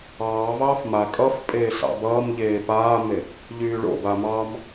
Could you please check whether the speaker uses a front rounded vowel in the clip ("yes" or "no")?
yes